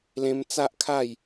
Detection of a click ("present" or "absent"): absent